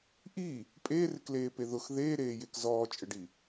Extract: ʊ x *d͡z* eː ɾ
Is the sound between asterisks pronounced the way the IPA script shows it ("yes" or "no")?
no